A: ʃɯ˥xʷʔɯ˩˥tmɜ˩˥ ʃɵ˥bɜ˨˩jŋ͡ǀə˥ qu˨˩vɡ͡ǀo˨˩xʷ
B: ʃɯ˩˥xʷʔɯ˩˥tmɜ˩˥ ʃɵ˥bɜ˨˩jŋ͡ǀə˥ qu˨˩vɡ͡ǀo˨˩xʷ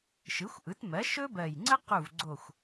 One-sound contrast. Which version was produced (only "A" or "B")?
B